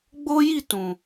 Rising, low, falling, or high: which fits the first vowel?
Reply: high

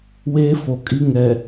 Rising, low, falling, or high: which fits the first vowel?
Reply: high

